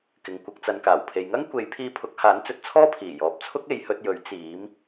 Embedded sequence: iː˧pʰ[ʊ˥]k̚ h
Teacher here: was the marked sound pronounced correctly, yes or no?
no